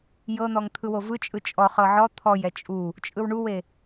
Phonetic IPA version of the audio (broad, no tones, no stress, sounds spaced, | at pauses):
j ɤ n̪ ɔ ŋ t̪ʰ ɯ w o v ɯ t͡ʃʼ ɯ t͡ʃʼ ɔ χ ɤ ʕ ɔ t̪ʰ ɔ j ɛ t͡ʃʼ u | t͡ʃʼ ɯ w ɳ u w e